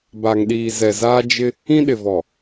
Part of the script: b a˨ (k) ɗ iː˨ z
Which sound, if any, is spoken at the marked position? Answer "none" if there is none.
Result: ŋ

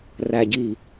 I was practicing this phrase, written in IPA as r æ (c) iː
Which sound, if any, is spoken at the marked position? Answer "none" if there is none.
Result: ɟ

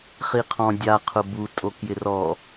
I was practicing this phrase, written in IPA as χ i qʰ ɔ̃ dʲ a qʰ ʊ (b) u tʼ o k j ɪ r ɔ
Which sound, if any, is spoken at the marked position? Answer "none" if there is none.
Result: b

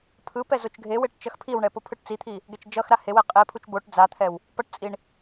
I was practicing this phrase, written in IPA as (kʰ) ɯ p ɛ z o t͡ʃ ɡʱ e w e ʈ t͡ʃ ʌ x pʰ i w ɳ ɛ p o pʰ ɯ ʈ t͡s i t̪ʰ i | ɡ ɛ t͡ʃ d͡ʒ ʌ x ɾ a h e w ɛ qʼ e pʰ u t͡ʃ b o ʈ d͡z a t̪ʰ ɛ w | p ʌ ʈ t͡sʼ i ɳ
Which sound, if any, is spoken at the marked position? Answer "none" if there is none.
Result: pʰ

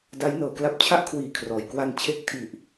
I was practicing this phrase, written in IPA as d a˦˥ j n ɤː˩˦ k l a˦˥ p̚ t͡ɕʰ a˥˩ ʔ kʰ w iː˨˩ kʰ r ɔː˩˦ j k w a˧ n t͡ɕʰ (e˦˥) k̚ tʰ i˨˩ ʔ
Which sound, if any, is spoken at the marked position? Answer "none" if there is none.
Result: e˦˥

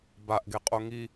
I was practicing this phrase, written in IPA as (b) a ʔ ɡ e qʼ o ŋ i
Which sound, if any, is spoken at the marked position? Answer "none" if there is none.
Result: b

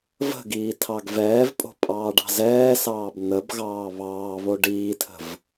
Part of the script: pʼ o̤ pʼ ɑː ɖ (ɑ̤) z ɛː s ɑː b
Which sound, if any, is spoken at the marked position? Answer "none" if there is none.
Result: ɑ̤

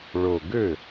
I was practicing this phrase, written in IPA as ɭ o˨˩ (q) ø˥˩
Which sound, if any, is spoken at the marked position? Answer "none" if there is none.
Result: ɡ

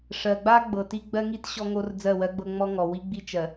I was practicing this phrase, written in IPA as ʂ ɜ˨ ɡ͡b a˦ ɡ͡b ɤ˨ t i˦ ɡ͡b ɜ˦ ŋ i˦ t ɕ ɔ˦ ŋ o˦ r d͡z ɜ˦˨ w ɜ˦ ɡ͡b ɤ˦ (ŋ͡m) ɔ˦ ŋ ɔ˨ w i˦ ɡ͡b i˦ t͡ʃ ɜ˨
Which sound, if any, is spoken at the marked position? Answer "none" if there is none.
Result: ŋ͡m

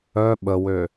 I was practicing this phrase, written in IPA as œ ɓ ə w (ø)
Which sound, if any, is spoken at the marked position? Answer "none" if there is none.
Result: ø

